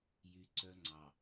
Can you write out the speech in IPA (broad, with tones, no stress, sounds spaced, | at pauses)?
j y˨ ǀ œ˦ ŋ͡ǀ ɑ˨